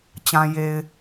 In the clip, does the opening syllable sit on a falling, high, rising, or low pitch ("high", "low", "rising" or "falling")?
low